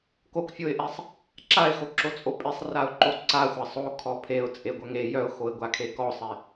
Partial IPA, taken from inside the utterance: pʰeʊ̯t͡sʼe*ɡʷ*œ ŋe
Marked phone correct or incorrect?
correct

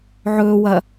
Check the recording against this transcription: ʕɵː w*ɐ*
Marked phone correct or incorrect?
correct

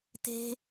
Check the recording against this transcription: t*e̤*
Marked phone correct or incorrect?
correct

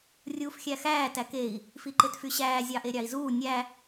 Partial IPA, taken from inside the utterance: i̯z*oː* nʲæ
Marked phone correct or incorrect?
incorrect: uː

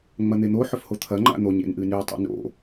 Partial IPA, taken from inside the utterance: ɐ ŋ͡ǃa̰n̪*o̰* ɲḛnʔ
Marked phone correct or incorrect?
incorrect: o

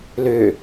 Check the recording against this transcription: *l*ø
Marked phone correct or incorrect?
correct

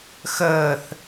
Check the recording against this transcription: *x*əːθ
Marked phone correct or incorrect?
correct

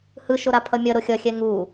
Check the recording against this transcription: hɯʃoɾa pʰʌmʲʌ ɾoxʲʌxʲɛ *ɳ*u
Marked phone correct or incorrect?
incorrect: ŋ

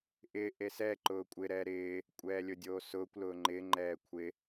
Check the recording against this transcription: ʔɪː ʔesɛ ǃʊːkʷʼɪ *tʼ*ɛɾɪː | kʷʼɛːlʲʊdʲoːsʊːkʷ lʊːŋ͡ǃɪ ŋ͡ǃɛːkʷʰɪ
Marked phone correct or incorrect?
incorrect: ɾ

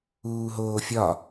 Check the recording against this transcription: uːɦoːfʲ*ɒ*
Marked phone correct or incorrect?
correct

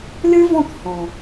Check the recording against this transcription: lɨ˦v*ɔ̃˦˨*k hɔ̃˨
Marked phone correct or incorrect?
correct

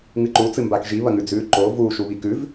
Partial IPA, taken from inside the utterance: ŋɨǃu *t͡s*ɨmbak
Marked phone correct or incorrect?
correct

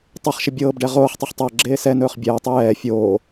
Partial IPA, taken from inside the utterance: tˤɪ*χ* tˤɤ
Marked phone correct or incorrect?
correct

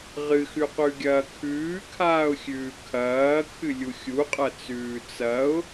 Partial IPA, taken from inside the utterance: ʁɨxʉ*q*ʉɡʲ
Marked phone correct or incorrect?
correct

